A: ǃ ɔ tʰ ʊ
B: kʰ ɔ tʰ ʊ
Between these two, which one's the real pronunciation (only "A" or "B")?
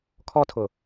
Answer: B